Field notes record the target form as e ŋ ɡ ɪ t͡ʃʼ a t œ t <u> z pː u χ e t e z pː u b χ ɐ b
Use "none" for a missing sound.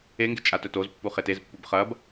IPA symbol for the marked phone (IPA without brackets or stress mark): o